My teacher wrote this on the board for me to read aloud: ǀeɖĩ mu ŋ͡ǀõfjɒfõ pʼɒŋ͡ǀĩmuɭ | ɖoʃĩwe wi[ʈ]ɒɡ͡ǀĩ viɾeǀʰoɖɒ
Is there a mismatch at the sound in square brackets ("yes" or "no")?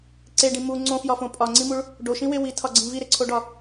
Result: yes